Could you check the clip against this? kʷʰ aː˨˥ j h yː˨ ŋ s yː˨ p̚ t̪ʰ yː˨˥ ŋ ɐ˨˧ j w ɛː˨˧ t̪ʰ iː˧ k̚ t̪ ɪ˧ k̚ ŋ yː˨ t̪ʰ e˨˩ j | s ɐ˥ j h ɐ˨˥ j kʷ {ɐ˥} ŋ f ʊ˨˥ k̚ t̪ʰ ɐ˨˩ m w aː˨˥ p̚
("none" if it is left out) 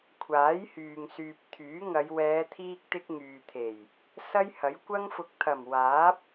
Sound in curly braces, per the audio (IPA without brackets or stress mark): ɐ˥